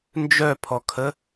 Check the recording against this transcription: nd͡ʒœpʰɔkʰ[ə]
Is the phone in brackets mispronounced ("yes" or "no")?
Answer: no